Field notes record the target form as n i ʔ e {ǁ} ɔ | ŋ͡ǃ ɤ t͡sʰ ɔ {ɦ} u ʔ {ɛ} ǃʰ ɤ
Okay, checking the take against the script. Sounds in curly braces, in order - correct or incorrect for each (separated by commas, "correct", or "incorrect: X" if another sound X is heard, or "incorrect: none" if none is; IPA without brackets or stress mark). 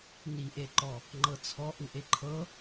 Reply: incorrect: ǃ, incorrect: ʔ, incorrect: e